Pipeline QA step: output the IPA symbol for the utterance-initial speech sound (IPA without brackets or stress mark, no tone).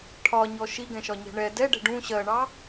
ʈʰ